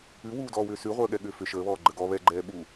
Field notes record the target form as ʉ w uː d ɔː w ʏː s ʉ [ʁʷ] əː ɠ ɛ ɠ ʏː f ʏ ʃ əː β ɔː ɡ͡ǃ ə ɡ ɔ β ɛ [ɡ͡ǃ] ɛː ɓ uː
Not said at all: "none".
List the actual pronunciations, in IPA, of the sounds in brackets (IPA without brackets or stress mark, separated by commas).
ʁʷ, ɡ͡ǃ